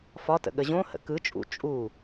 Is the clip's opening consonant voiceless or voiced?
voiceless